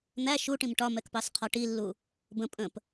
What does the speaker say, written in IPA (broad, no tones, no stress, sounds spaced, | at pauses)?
n̪ æ ʃ u ʈ ĩ m ʈ ɒ m ɛ k p ɑ s qʰ ɒ ʈ i lː u | b ə̃ pʼ ə̃ p